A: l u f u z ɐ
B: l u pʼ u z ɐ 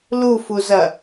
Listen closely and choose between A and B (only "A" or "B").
A